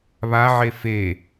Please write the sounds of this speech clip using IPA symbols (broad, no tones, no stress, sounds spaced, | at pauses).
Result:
β a ʕ e f e